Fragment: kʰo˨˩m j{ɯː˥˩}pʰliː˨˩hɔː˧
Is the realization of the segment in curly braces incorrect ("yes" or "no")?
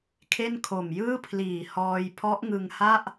no